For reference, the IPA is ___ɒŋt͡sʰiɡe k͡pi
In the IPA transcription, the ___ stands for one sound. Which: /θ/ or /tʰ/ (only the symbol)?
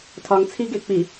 tʰ